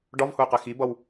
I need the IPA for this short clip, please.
ɖ ɒ v h ʊ y̯ q ɛ x i b ʌ w

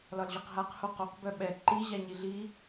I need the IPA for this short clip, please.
l ɒ l ʑ ɒ q ɦ a q h o q o q b œ ɓ ɛ ǃ i ʑ a ɲ i ɮ i

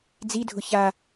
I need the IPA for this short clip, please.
d͡z i dʱ ʊ ç a

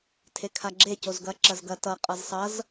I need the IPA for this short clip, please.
tʰ e kʰ a ɡ͡ǁ e c o z ɡ ɐ ǁ ɐ z ɡ ɐ t ʌ qʼ ʌ z sˤ ʌ z

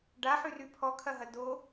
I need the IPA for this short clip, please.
ɖ a ħ y r y pʰ ɔ kʰ ɐ ɦ ɐ d o

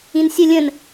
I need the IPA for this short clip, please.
ĩ n sʲ ə lʲ ə̃ n

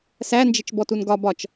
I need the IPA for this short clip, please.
s æ n d͡ʒ ɪ t͡ʃ b ɔ t u n ɡ ɒ b ɒ t͡ʃ

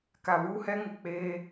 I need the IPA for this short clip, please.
k a˨ β uː˦ h ɛ˦ ŋ ɪ˨ k͡p eː˦

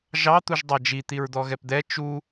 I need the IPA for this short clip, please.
ʒ ɑ t̪ u ʒ dˤ ɑ d͡ʒ i t̪ i ɹ d̪ ɔ ɣ ɛ p d̪ ɛ t͡ʃ u

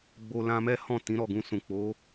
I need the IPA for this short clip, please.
ɡ͡b o˧ l ã˧ m ɛ˦ h ɔ̃˦˨ t ĩ˨˦ ɾ ɔ˦˨ ɡ ũ˧ s ũ˨ k͡p o˨˦

